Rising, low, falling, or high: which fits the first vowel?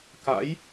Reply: rising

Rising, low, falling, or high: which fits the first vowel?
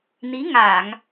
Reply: rising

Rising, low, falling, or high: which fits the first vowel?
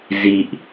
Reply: low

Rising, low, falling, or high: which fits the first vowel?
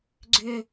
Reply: high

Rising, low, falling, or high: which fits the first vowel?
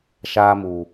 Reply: high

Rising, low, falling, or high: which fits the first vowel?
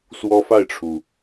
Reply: high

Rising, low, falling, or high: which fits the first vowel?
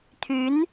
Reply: rising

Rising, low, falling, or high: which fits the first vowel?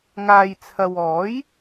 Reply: low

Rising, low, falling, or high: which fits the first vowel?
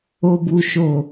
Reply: low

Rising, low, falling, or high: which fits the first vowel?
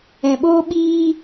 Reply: low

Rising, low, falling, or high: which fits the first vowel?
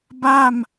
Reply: falling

